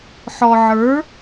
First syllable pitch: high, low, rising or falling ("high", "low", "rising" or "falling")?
low